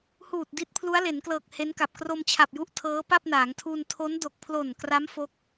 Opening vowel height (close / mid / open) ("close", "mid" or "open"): close